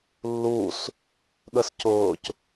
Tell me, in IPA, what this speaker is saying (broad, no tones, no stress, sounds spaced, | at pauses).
lː uː s | ɠ ə s c ʊː c